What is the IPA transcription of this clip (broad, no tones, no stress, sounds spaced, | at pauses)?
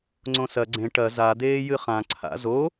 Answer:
ŋ͡ǀ õ s ɐ ɡ͡ǀ ẽ ʈ ɐ z a d̪ eː j ɨ χ ã ǀʰ a̰ z o